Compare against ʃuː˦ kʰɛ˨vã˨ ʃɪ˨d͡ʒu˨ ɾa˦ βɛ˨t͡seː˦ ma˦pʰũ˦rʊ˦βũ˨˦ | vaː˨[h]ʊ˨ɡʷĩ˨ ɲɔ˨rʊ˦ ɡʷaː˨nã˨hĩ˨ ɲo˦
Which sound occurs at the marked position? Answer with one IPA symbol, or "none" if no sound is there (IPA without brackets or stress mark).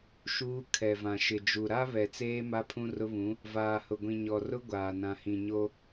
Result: h